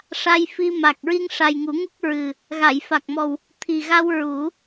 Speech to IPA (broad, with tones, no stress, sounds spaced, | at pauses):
ʂ a˧ j f i˧ m a˨˩ k̚ ɹ i˧ ŋ ʂ a˨˩ j ŋ u˨˩˦ ŋ u˦˥ k̚ ɹ ɨ˨˩ | ɣ a˨˩˨ j f a˨˩ k̚ m ɔ˨˩ w | t̪ʰ i˨˩ ɣ a˧ w ɹ u˨˩˦